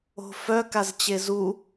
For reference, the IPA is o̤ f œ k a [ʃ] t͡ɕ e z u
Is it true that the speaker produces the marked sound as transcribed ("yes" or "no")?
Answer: no